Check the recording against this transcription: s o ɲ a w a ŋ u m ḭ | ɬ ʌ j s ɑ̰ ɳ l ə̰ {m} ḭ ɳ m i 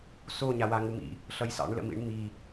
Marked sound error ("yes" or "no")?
no